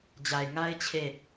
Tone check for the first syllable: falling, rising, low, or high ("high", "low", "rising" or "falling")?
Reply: low